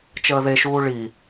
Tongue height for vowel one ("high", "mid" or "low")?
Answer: mid